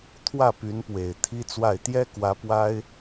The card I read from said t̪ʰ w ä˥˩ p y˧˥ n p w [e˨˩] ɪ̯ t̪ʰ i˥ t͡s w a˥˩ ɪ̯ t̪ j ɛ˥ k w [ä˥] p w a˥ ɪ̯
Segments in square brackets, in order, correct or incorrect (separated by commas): correct, incorrect